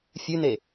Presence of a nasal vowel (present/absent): absent